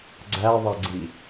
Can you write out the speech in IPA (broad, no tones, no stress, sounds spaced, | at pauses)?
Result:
ɡ͡ǀ æ ðˤ æ ɡ͡ǀ i